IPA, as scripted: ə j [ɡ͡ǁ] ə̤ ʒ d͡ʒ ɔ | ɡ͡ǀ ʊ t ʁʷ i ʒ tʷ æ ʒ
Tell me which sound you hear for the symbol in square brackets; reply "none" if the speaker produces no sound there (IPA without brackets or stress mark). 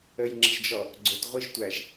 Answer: ŋ͡ǁ